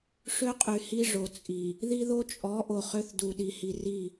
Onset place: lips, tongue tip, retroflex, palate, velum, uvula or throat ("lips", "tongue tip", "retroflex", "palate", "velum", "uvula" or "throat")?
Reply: retroflex